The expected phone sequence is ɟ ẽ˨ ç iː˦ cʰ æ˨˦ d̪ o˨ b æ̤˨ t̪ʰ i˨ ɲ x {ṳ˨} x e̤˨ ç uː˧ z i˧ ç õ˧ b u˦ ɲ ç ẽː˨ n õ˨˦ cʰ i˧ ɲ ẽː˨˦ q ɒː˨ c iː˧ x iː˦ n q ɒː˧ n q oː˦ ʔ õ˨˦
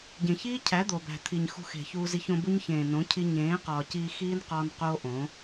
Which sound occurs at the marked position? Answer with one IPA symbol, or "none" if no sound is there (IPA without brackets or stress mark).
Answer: ṳ˧